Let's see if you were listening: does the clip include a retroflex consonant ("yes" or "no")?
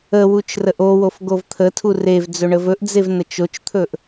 yes